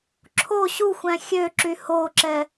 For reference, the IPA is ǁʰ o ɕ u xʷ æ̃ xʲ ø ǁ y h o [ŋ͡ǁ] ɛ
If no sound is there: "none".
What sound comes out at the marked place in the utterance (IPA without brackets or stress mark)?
ǁ